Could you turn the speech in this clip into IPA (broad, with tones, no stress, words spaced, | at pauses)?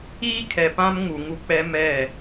iː˦kʰɛ˨pã˦m ŋu˨ŋu˦k͡pɛ˦ mɛ˦˨